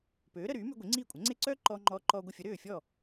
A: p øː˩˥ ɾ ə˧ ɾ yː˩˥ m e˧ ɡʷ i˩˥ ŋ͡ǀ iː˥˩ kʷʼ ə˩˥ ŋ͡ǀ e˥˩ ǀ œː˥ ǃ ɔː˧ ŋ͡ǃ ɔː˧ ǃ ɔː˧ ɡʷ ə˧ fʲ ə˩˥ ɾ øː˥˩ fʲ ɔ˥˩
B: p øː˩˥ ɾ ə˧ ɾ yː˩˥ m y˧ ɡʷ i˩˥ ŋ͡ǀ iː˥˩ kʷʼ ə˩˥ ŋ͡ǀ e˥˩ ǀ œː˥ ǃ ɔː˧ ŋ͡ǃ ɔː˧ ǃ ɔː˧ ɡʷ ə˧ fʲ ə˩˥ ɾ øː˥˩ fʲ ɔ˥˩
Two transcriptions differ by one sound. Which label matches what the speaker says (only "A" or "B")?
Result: B